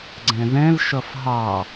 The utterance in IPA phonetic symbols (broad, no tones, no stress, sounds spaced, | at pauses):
ɡ͡ǀ ɛ̃ ð ɛ̃ l ʃ ʌ f ɦ ɑ